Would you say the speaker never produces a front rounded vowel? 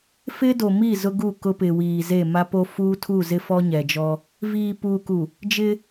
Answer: yes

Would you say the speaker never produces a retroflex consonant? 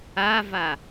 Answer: yes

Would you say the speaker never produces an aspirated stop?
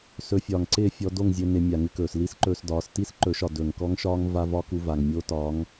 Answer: yes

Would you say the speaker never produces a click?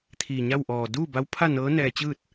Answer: yes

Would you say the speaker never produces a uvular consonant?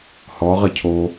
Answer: no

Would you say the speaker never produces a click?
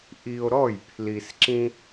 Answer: no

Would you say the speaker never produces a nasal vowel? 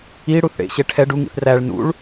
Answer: yes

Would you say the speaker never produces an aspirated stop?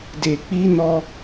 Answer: yes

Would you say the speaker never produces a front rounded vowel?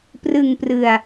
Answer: yes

